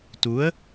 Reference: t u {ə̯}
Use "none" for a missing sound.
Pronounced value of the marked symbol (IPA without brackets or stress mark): ə̯